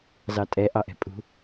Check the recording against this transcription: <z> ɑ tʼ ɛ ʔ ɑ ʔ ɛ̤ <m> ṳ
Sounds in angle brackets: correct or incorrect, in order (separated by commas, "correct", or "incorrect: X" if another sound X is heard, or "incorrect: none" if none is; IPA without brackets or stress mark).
correct, incorrect: pʼ